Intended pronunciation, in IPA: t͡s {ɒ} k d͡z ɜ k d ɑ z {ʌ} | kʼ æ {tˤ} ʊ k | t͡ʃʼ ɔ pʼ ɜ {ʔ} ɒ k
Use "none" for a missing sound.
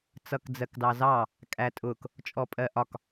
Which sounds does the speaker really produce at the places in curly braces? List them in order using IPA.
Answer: ʌ, ɑ, tʼ, ʔ

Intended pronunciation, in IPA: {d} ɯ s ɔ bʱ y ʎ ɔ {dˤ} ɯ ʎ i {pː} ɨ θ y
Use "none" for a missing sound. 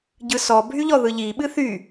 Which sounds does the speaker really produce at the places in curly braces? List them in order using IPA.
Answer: ɟ, ð, ɓ

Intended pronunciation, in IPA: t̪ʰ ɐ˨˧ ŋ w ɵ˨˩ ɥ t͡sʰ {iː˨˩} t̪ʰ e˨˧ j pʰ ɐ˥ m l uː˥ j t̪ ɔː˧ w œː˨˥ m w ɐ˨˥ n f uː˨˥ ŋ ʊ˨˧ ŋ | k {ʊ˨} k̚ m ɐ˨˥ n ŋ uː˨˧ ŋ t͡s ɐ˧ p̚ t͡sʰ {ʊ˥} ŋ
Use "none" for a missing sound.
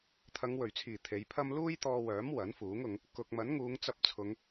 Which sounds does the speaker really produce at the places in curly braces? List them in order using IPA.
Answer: iː˨˩, ʊ˨, ʊ˨˧

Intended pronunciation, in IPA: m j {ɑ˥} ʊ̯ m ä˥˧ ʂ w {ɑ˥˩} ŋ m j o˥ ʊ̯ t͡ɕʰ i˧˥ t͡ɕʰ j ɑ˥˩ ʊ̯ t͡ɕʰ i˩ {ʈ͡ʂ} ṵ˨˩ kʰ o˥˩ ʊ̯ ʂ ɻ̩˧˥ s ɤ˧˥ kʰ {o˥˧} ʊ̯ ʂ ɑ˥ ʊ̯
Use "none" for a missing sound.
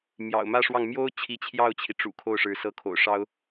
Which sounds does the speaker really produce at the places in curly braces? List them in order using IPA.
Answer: ɑ̰˨˩, ɑ˥˩, ʈ͡ʂ, o̰˨˩

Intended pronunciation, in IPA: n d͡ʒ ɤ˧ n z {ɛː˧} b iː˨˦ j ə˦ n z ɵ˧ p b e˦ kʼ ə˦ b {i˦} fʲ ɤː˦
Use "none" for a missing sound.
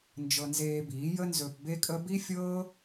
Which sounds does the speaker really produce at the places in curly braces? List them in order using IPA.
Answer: eː˧, i˦

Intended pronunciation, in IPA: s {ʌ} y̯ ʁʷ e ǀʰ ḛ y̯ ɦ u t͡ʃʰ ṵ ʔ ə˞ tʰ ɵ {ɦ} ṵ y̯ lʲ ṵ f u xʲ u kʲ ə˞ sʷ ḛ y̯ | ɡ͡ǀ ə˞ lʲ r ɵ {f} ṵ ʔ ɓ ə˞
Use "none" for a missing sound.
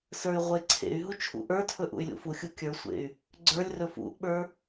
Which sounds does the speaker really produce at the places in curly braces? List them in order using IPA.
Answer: ə˞, ʔ, f

